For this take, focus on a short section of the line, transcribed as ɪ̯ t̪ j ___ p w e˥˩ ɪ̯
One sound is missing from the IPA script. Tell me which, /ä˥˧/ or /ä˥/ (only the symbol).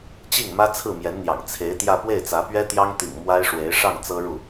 ä˥˧